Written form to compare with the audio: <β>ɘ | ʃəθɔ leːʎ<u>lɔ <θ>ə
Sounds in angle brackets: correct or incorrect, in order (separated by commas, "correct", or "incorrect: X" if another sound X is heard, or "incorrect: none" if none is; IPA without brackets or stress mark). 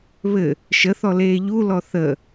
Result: correct, correct, correct